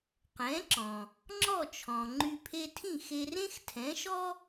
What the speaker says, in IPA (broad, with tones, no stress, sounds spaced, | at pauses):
q ɛ̃˩˥ ǁ ɔ̃˩ | ŋ͡ǁ ɔ˥˩ t͡ʃʰ ɔ̃˩ ŋ͡ǃ y˧ pʰ e˧ tʰ ĩ˥˩ x e˧ r ẽ˥ x tʰ ɛ̃˩˥ ʃ ɔ˥